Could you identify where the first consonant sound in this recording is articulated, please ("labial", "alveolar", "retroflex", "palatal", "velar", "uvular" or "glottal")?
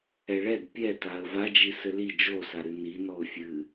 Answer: retroflex